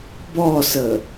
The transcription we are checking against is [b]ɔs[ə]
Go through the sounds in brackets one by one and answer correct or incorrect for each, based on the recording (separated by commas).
correct, correct